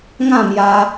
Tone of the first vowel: falling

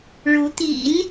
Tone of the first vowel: rising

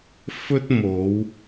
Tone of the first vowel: high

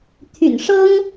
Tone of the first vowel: low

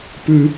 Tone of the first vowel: high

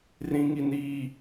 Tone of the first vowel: high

